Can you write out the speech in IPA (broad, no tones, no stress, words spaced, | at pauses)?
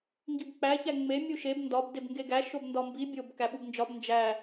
ŋɡibk͡pæ çæŋ͡me mʲuʃeb ndɒb debŋɡeɡæ ʃobndɒmbi bʲob kæɓubnd͡ʒɒb nd͡ʒæ